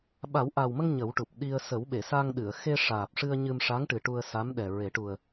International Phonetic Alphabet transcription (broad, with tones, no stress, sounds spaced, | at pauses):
ɓ a˨˩˦ w ʔ a˨˩ w m ə˧ ŋ ɲ ə˨˩˦ w ʈ u˨˩ p̚ ɗ i˧ ə̯ s ə˨˩˦ w ɓ e˨˩˨ s a˧ ŋ ɗ ɨ˨˩˨ ə̯ x e˧ ʂ aː˨˩ p̚ ʂ ɨ˧ ə̯ ɲ ɨ˧ m ʂ a˧˥ ŋ ʈ ɨ˨˩ ʈ u˧ ə̯ s a˧˥ m ɗ ɛ˨˩ ɹ e˨˩˦ ʈ u˨˩ ə̯